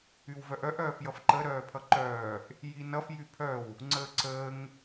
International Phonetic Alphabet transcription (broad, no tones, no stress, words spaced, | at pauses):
ywvœʔœʔ œːfjʌfǃə ɾœːpʰʌǃœːʔ | jinʌf jypʰœw | ŋ͡ǀəːǀəːŋ